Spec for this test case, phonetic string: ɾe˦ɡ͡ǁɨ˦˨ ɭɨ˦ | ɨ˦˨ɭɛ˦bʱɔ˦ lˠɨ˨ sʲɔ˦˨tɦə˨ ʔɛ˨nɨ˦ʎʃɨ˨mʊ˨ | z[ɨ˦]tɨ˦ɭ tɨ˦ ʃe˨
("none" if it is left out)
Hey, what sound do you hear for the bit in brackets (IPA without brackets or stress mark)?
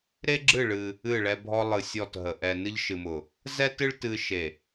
ɛ˦